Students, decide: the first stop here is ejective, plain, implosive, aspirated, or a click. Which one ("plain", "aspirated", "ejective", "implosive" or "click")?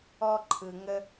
click